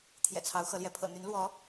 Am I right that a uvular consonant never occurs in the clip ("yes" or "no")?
yes